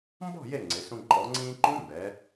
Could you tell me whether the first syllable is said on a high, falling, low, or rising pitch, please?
falling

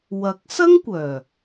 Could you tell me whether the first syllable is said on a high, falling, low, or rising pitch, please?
rising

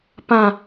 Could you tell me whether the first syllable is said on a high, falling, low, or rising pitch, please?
low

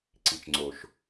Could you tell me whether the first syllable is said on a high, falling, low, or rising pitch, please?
low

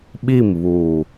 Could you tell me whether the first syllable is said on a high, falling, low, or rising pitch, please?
falling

